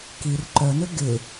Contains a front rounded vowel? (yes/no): yes